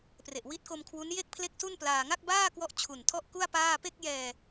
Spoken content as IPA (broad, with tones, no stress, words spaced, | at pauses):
pre˨˩ʔwi˦˥t̚ko˧m kʰwu˦˥n je˥˩k̚pʰle˥˩k̚su˥˩nplaː˧ ŋa˥˩k̚baː˥˩ kwɔ˦˥ʔ t͡ɕʰu˨˩ntʰɔ˥˩ʔku˥˩a̯ paː˥˩ pe˥˩k̚jɛː˧